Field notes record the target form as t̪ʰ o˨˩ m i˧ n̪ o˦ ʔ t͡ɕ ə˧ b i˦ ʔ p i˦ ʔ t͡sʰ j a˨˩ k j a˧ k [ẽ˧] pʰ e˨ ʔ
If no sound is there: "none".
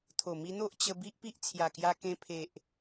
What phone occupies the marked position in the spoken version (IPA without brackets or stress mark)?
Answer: ẽ˧